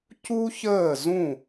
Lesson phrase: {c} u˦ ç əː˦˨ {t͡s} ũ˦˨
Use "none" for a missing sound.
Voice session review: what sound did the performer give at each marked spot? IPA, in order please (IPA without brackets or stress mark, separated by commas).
c, z